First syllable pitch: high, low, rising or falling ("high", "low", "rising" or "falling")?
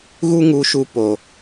high